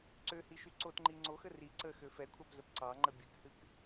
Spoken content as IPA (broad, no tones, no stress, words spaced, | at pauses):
ǀøhiʃy ǀotŋ͡ǃi ŋ͡ǀoxə ri ǀəxø fɛkʷʰɑpzəp ǀɑŋ͡ǃə bʲɨkhɨk